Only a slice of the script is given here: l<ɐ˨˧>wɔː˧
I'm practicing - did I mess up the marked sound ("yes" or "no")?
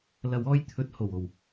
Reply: yes